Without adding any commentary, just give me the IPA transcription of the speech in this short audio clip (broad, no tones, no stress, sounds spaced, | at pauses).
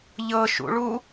ʎ ɤ ʃ ṵ ɭ u